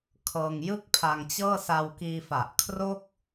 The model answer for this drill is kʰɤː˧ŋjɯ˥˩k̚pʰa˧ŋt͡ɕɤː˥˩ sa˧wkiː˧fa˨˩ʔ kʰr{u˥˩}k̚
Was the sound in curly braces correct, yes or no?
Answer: no